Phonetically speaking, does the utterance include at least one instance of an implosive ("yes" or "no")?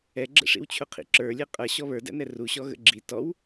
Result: no